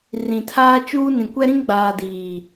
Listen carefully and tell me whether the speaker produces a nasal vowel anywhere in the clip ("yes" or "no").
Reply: yes